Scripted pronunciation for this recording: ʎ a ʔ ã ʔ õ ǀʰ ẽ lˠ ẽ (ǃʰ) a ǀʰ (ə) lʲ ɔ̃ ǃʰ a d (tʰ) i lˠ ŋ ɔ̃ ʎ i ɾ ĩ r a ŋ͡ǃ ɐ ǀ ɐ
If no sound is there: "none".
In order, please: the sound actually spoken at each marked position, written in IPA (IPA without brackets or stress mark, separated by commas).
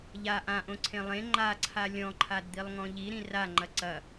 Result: ŋ͡ǃ, a, d̪